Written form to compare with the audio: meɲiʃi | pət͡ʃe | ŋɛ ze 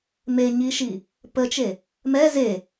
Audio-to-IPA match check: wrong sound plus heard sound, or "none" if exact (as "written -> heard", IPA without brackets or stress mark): ŋ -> m